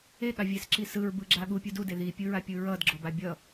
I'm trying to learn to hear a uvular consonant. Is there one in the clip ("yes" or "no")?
no